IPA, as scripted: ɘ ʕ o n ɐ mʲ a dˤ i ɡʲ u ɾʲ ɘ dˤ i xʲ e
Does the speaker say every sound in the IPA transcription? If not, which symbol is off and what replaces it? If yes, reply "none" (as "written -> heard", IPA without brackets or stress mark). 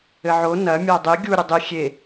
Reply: none